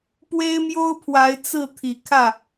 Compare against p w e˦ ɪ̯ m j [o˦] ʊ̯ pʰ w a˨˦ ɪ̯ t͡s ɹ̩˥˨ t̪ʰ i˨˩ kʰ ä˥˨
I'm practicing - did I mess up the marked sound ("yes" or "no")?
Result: no